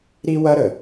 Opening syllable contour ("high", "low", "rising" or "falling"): high